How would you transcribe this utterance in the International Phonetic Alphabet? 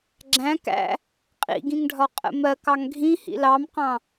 ɡ͡ǁæ̃ kæ̰ | qʼḭɡĩŋɖʱɒ qʼə̰mɜk ɑŋɡʱĩ hḭlɑmqɑ̃

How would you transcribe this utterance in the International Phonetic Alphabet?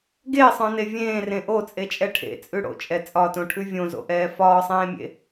ɡesˤœ̃ne vʲẽːrẽ ʔot͡sʼet͡ʃʼɛ ʈʰḛt͡sʼʉ ɽo̰t͡ʃʼɛ t͡sʼɒtõʈʰʉ vʲõzo̰ʔɛː fɒːsˤẽːmʲḛ

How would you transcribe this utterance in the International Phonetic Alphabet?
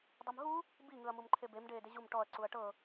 dˤumɦu | bi ŋɯɐ̯mumǃʰebem ɖeːdeʑum ʈɔɐ̯ ǀuɐ̯ʈɤ

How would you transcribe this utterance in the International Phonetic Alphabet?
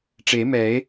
ʈ͡ʂe˨˩˦mɛ˨˩˦e̯

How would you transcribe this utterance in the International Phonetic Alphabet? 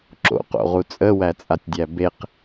ǁo̰qo̰ʁu t͡sʼəwæt͡sʼatʲdʲæ beq

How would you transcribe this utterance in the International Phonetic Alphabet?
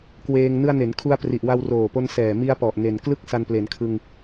kweː˧ŋ nɯ˧a̯ne˩˦nkʰu˧a̯ pri˨˩ʔwa˧wroː˨˩po˧n sɛː˨˩mi˧a̯pɔ˨˩ʔ ne˨˩n klɯ˦˥k̚ sa˧nple˩˦nkʰɯ˧ŋ

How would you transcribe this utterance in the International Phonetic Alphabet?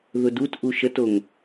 ðʊdut ʔuʃətoŋ

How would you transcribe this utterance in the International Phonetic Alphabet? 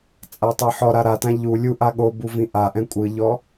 t͡sʼatˤɤħɔɾa ɾatã ʎu lʲuʔa ɠobu vĩʔaʔɛ̃ kʷʼɯʎɔ

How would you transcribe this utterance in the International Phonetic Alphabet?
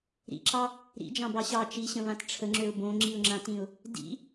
ɾḭǁɑ | ɾḭd͡ʒɑ̃bɑ ɕɑ t͡ʃiɕə̃βãt ʈ͡ʂʰəŋ͡ǁøʊ̯ bõŋ͡ǁiʊ̯ŋ͡ǁãtĩʊ̯ | dḭ

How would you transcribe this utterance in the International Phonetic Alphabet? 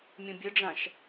mʲũbʲɘɖ͡ʐãʃ

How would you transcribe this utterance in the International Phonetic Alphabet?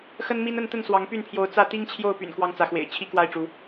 xə˦nmi˦n ə˥˨nt̪ə˥˨n swɑ˨˦ŋpy˥˨npʰjo˨˦ʊ̯ t͡sä˥˨ t̪i˦ŋt͡ɕʰjo˥˨ʊ̯py̰˨˩n kwɑ˦ŋt͡sä˨˦xwḛ˨˩ɪ̯ t͡ɕʰi˦kwa˥˨ɪ̯ʈ͡ʂu˨˦

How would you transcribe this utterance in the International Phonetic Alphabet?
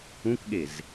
ũkɠez

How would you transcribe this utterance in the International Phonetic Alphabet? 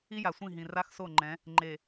i˦ja˨sʷĩ˦˨ ɦĩ˨ ra˦xso˦˨ŋ͡ǃɛ̃˨˦ | ŋ͡ǃe˨

